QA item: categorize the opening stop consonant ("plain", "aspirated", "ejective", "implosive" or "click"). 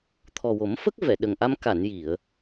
aspirated